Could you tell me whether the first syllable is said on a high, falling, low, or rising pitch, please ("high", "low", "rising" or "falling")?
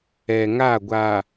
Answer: low